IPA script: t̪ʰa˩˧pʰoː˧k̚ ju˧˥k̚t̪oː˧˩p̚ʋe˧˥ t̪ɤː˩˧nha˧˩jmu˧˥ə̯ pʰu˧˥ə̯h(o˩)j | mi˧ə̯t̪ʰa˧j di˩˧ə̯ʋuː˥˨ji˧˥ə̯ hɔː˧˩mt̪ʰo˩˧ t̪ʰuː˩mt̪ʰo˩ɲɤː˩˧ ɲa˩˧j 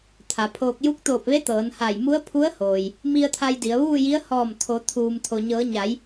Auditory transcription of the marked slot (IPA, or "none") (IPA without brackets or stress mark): oː˩